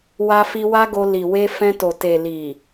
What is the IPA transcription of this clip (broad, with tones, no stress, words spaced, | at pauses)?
wa˧fi˧ wa˦ɡo˧ li˨we˧fɛ̃˧to˨ te˨li˨